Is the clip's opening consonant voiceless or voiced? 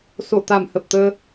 voiceless